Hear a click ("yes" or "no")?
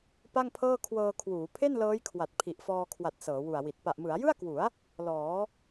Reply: no